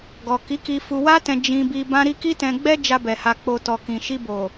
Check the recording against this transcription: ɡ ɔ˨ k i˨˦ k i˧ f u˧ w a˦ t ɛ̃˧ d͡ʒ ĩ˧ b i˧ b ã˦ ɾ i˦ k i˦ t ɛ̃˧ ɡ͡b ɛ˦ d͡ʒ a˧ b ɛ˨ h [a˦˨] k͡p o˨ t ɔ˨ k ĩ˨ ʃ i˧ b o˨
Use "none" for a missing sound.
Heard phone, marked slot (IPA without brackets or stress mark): a˨